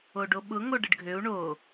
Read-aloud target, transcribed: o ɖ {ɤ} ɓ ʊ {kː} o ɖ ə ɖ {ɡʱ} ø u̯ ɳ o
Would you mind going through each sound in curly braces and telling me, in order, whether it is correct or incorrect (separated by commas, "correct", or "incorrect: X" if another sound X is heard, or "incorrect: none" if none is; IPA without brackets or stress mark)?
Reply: incorrect: o, incorrect: ŋ, correct